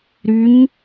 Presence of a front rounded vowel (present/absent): present